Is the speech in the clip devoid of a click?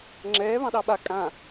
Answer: no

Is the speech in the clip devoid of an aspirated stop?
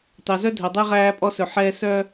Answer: yes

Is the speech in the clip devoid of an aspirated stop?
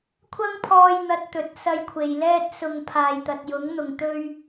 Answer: no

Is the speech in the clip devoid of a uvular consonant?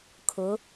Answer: yes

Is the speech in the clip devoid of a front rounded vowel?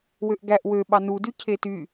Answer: no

